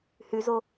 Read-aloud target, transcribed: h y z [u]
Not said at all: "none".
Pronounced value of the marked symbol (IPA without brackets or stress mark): o